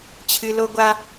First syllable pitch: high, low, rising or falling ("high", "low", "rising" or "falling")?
low